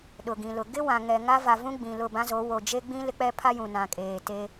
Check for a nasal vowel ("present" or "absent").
present